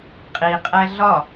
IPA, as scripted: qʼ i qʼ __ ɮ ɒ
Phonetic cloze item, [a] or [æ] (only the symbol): æ